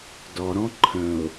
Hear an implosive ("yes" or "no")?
no